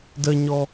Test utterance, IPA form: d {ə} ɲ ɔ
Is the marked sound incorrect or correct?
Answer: correct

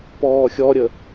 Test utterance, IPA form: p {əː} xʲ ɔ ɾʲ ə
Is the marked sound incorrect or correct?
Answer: incorrect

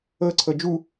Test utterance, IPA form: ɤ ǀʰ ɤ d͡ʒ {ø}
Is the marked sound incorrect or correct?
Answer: incorrect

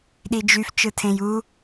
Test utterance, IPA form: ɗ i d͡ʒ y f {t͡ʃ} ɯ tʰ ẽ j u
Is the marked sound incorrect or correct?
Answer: correct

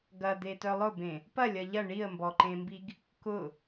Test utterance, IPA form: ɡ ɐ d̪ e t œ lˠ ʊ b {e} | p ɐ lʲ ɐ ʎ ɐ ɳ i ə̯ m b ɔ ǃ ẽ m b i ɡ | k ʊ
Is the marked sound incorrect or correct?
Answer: incorrect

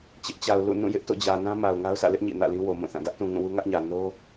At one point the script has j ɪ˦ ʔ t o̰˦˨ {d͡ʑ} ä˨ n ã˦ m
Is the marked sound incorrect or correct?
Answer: correct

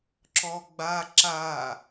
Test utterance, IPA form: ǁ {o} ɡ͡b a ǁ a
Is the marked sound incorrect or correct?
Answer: incorrect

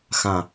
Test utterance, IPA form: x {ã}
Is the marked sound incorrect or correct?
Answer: correct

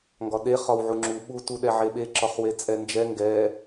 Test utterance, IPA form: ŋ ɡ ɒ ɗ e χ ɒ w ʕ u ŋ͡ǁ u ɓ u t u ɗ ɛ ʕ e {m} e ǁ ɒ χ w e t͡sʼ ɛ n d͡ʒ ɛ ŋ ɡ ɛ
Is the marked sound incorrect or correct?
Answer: incorrect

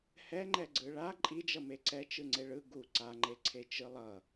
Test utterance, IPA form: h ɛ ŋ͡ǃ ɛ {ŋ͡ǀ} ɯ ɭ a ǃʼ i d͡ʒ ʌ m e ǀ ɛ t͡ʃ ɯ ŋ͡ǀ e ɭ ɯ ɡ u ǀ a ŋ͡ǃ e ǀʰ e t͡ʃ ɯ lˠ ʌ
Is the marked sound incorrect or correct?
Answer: incorrect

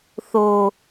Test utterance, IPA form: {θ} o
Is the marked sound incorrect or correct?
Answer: correct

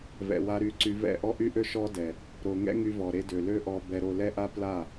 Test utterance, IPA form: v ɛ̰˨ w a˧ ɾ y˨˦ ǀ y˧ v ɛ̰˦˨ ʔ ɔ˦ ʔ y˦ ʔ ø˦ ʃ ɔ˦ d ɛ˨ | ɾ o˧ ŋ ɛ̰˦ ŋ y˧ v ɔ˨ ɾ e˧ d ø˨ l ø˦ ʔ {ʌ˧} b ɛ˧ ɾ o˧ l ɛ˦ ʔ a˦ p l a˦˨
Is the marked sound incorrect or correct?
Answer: incorrect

